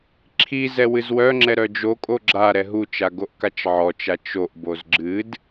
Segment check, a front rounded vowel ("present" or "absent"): present